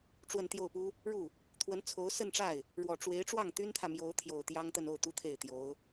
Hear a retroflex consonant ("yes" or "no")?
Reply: yes